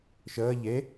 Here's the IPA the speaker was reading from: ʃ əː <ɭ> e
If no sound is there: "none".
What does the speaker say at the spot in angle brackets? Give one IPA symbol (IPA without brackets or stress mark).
ʎ